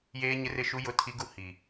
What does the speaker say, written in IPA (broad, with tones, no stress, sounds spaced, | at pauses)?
j eː˨ ɲ ɪ˨ r ɪ˨ ʃ u˨ j ʊ˨ tʰ i˨ ɡ u˨ h i˨